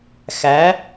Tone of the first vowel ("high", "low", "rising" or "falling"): rising